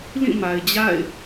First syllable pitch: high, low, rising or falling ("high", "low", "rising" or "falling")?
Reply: falling